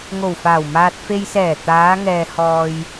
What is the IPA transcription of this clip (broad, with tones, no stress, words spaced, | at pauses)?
ŋo˨˩wfaː˨˩wmaː˨t̚ fe˨jsɛː˨˩ t̪aː˨˧ŋɛː˨ hɔː˨j